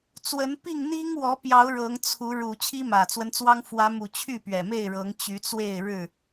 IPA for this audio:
t͡s w ə˨˦ n p i˥˨ ŋ n̪ i˦ ŋ w ɔ˨˦ p j ɑ˨˦ ʊ̯ ɻ ɤ˨˦ ŋ t͡sʰ u˨˦ ɻ u˨˩ t͡ɕʰ i˦ m ä˨˩ t͡s w ə˦ n t͡s w ɑ˦ ŋ f w ä˨˦ m u˨˩ t͡ɕʰ y˥˨ p ɥ ɛ˨˩ m e˥˨ ɪ̯ ɻ ɤ˨˦ ŋ t͡ɕ y˨˦ t͡s w e˥˨ ɪ̯ ɻ ɻ̩˥˨

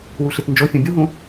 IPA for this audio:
w u ɬ i t n d͡ʒ o fʲ ũ bʲ u ɦ ũ

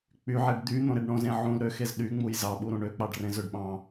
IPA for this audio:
k͡p y ʕ e ɖ d̪ y n̪ õ ɾ e ɖ ɳ õ z ẽ ʕ ũ l ɾ ø x e z ɗ y ŋ͡m u j z ɑ ɓ u ɾ ũ ɳ ø k͡p ɑ ɖ r ẽ z ø ɖ ɓ ɑ̃

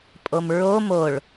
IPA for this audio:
pʼ o m ɹ o m o ɭ

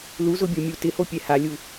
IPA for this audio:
l u z ʊ bʲ o mʲ u t ɪ h o pʲ ɛ h a lʲ u

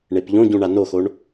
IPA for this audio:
ɳ e p ʎ õ ɟ ũ ɳ a n o x o ɳ

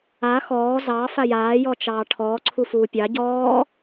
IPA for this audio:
a x ɔː z ɑ f a j aː j ɔ t͡ʃ ɑː ʈʰ ɔː ǀʰ u f uː pʲ ɑ ɟ ɔː

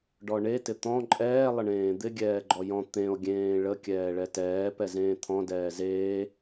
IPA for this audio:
ɖ ɔ ɳ e t ɪ t̪ ɔ̃ ǃʼ ɛː lˠ ə ɳ ẽː d̪ ɪ ɡʲ ɛː ɡ͡ǃ ɔ j ɔ̃ t̪ ẽ o̯ ɡʲ ẽː ɭ ə kʲ ɛː ɭ ɛ t ɛː p ɛ z ẽː t̪ʰ ɔ̃ d ɛː z eː

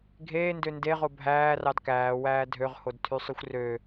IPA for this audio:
ɡʱ eː n d ø n d e ʁ o bʱ æː r ɑ d k æː w æː dʱ ø ʁ h o d tʰ y sˤ y xʷ r ø

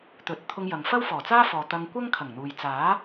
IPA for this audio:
t̪ ɵ˨˥ t̚ t̪ʰ ʊ˧ ŋ j ɐ˨ ŋ f ɐ˥ w f ɔː˨˩ t͡s aː˥ f ɔː˨ t̪ ɐ˧ ŋ kʷ ɐ˥ ŋ kʰ ɐ˨˩ ŋ n̪ uː˨ j t͡s aː˨˥

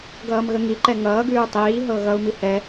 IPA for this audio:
ɡ ʌː m ɣ ə ŋ i ǃ ɛ ŋ ʌː ɡ ʉː tˤ iː ɦ ɤ ɣ ʌ u̯ m i h ɛ

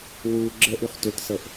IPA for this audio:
w u ɡ͡ǁ ə ʔ y χ t ʏ t s ɤ ʔ

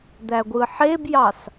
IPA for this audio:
d̪ æ ɡʷ ɯ ħ e b j ɑ s

